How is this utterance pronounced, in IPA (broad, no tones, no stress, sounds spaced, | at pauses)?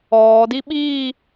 ɔː d i ɓ iː